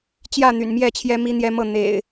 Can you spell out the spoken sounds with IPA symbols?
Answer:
t͡ɕ j ä˥˨ n̪ y̰˨˩ n m j ɛ˥˨ t͡ɕʰ j ɛ˦ m i˦ n̪ j ɛ˦ m ɤ˥˨ n̪ ḛ˨˩ ɪ̯

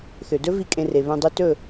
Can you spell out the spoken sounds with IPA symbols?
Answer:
θ ø˨ d ɵ˦ v i˧ kʼ ẽ˧ r e˨ β œ̃˧ dˤ ø˦ t ɵ˦˨

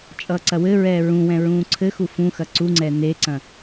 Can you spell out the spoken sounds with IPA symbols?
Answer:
t͡ʃʼ ʌː ǀ ɐ w ɘ ɹ ɛː ɹ ũ w ɛ̃ ɹ ũː ǀʰ ɘ x u f ũ x ɐ ǀ u ŋ͡ǀ ɛ n e ǀ ɐ̃

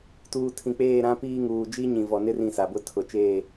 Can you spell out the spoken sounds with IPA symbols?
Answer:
t uː˨ tʰ ĩ˨ k͡p eː˦˨ ɾ ã˦ p iː˦ ŋ uː˨ d͡ʒ i˦ ɲ ĩ˨ v ɔ˨ n ɪ˦ r ĩ˦˨ s a˨ b ʊ˦ tʰ ʊ˨ t͡ʃ eː˦˨

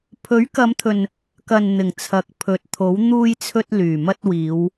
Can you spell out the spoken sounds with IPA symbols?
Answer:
pʰ ɵ˨˥ ɥ k ɐ˨˧ m t̪ʰ ɵ˨ n | k ɐ˨ n n̪ ɪ˨˩ ŋ t͡sʰ ɐ˨˥ k̚ pʰ ɵ˨ t̚ t̪ʰ o˨˥ w n̪ uː˧ j t͡sʰ ɵ˧ t̚ l yː˨˩ m ɐ˧ t̚ w iː˨˧ w

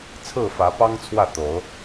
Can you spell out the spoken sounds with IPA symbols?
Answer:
t͡sʰ ɹ̩˥˨ f ä˨˦ p ɑ˦ ŋ t͡sʰ w ä˥˨ t̪ o˨˦ ʊ̯

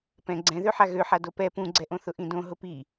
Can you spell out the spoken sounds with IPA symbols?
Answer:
p ɛ̃ ɡ͡ǀ ɛ̃ ð ø ħ a ɣ ø ħ a d o p ɛ p ũ ɡ͡ǀ ɛ ʔ õ θ ʊ ʔ ĩ d õ ɦ ʊ p i

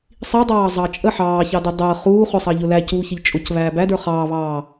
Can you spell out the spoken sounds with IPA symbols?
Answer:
sˤ i dˤ ɑː zˤ ɑ t͡ʃʼ ə ħ ɑː ç ɑ d ɪ dˤ əː χ uː χ ʊ sˤ ɑ ʎ ʊ l æ c uː ç ɪ ʎ t͡ʃʼ ʊ c β æː b æ d ə˞ χ ɑː β ɑː

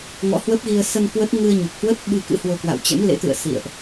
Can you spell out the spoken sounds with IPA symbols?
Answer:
ŋ ɔ̰˧˥ h w ə˦˥ p̚ ɣ i˧ ə̯ s ə˧ n k w ə˦˥ t̚ ŋ ɨ˧ ə̯ ɲ u˨˩ k̚ h w ə˦˥ t̚ ɓ ɨ˧ k ɨ̰˧˥ h w o˧ k w a̰˧˨ w t͡ɕ ɛ̰˧˥ m l ḛ˧˥ t̪ ɨ̰˧˨ ə̯ s ḭ˧˨ ə̯ ʔ

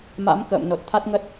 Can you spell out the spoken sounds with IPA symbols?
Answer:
m a̰˧˥ m k ə̰ː˧˨ m n o˨˩ t̚ t̪ʰ a˦˥ t̚ ŋ ə˦˥ t̚

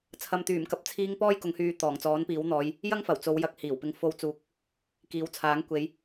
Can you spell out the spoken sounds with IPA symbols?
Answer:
t͡sʰ ɐ˨ m t̪ yː˨˩ m k ɐ˨ p̚ t͡sʰ iː˧ ŋ p ɔː˥ j k ʊ˨˥ ŋ h yː˨˧ t̪ ɔː˨˩ ŋ t͡s ɔː˨˥ n p iː˨˥ w n̪ ɔː˨˧ j | j ɐ˥ ŋ f ɐ˨˩ w t͡s o˨˧ w j ɐ˨˥ k̚ h iː˨˩ w p ɪ˧ ŋ f o˧ w t͡s uː˨ k̚ | k iː˨˥ w t͡sʰ aː˨˥ ŋ kʷ e˨˧ j

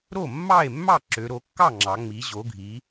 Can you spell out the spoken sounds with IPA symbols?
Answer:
ɾ o˥˩ mː ɑ˥˩ e̯ mː ɑ˥˩ ǁ ø˩˧ ɾ o˩˧ kː ɑ˥˩ ŋ͡ǁ ɑ˩˧ ŋ͡m i˩˧ ʑ o˩˧ ɡʱ i˩˧

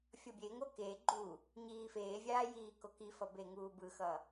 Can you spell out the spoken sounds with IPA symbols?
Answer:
fʲ ʌ bʲ e ŋ o k e ɡ͡ǃ u | ɲ iː f eː vʲ aː j iː k o k i f ʌ b e ŋ uː b ɯ x ʌ

